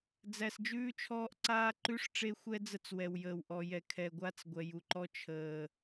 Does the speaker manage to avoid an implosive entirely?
yes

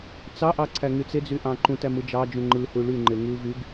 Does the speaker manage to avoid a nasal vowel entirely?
no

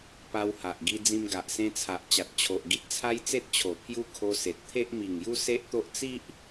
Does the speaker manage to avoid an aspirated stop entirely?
no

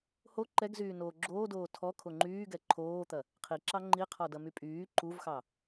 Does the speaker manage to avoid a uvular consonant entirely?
no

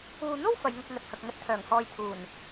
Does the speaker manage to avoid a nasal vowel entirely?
yes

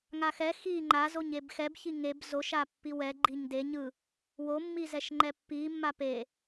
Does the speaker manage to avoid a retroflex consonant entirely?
yes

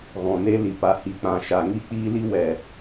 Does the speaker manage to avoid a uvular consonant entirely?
yes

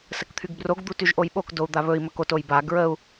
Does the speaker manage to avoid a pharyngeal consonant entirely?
yes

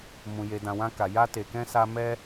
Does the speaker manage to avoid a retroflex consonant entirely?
yes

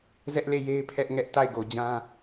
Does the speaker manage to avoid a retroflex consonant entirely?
yes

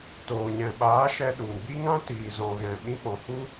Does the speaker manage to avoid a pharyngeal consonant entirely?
yes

